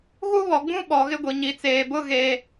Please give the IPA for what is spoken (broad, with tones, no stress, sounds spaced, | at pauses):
ɣ u˦ β ɔ˨ ɡ͡b ũ˦ ɓ ɔ˨ ɣ ɪ˦ ɡʷ i˨ ɲ i˨ t͡s eː˨ b ʊ˦ ɣ e˦